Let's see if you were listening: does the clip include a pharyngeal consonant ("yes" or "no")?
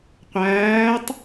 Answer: no